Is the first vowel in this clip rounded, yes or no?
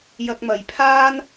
no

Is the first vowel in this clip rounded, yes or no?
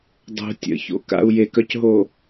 yes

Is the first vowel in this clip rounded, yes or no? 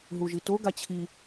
yes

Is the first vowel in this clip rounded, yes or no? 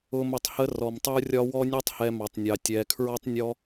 yes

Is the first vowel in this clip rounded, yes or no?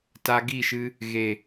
no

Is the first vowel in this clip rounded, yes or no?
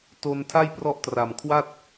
yes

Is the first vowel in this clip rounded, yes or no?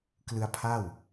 no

